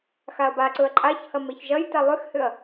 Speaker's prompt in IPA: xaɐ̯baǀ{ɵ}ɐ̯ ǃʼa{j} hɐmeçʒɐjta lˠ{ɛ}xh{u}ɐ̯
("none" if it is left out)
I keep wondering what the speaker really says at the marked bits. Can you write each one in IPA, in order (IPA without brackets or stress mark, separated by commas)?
ɵ, ç, ʏ, ʏ